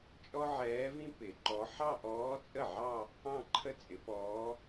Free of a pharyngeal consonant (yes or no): no